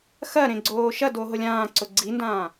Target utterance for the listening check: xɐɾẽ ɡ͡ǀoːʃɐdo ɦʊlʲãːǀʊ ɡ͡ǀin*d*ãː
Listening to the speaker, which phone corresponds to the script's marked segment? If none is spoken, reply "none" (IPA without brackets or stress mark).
d